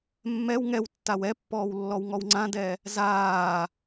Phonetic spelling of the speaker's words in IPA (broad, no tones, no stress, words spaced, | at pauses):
mːɛw ŋɛwtːaw ɛpːɔːwlːɔwŋɔw ŋ͡ǀãdɛ | zaː